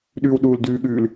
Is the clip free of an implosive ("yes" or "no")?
no